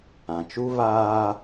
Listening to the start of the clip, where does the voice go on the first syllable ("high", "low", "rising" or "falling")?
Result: low